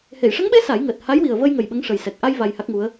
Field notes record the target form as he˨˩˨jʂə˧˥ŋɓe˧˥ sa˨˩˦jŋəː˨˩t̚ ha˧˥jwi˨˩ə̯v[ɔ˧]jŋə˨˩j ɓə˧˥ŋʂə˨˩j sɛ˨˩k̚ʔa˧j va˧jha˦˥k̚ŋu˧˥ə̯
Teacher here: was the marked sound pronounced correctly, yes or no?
no